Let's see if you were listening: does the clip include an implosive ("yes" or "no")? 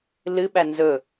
yes